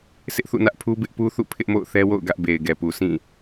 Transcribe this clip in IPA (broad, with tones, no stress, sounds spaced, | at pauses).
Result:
sʰ ɪ˦ ʔ θ ṵ˦˨ n ä˦ ʔ pʰ u˦ b ɪ˦ ʔ p u˦ θ ṵ˦˨ pʰ ɪ˦ ʔ m o̰˦˨ ʊ̯ θ ɛ˦ w o̰˦˨ ʊ̯ ɡ ä˦ ʔ b e˨ ɪ̯ ɡ ɛ˨ p u˨ sʰ ĩ˦˨